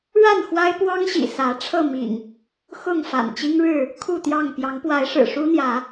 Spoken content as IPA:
ɻ a˥˨ n x w a˦ ɪ̯ p w ɑ˦ ŋ ɕ ḭ˨˩ s ä˨˦ ʈ͡ʂʰ ɤ˥˨ m ḭ˨˩ ŋ | x ʊ˥˨ ŋ f a̰˨˩ n t͡ɕ i˦ ŋ ɻ ɻ̩˥˨ | kʰ u˥˨ t̪ j ɑ˥˨ ŋ p j ɑ˨˦ ŋ p w a˨˦ ɪ̯ ʂ ɻ̩˨˩ ʂ u˦ n̪ j ä˨˦

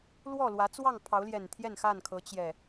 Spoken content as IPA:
l w ɔ˥˨ l w ä˨˦ t͡s w ɑ˥˨ ŋ pʰ ɑ˨˦ ʊ̯ l j ɛ˨˩ n t̪ʰ j ɛ˥˨ n x a˥˨ n kʰ ɤ˨˦ t͡ɕ j ɛ˨˩

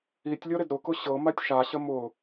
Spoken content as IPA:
i tʲ lʲ ɤ ɾ ɪ d ɾ ʊ k ʊ ɕ ɤ m a tʲ ʃ a ɕ ə m ʊ

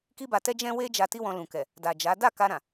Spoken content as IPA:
k i˦ b a˧ t ɛ˦ d͡ʒ ɛ̃˦ w e˦ d͡ʒ a˧ t i˦ w ɔ̃˧ l ũ˨ k ɛ˨ | d a˨ d͡ʒ a˨˦ d a˦˨ k a˧ ɾ ã˨

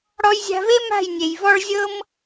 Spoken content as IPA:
ɽ ɔ˧ j zʲ a̤˧ v e˦ m a̤˦˨ j nʲ e˨ j v ɔ˦ ɭ zʲ ɤ˦ m

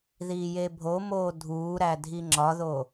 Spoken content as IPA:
ð iː j e bʱ o m oː dʱ uː ɾ æ dʱ i ŋ͡ǁ ɒ ð o

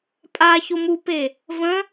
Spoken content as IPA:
pʼ a ç o m u p e | v ə̃

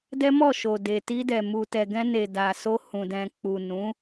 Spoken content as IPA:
d ɛ˦ m ɔ˦˨ ʃ o˨ d e˨ t i˧ d ɛ˨ m u˨ t ɛ˨ ɡ ɛ̃˧ n e˨ d a˨ s o˧ h ũ˨ d ɛ̃˨ k͡p u˨ n ũ˨˦

